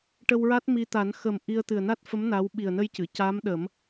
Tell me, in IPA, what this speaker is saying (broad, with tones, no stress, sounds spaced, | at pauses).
ʈ ə˧ w ɹ a˦˥ t̚ m i˧ t̪ a˨˩˦ n x ə˨˩ m ʔ i˧ ə̯ t̪ ɨ˨˩ ə̯ n a˦˥ t̚ f ə˧˥ m n a˧˥ w ɓ i˨˩ ə̯ n ə˧ j c ɨ˨˩˨ c a˧˥ m ɗ ə˨˩˦ m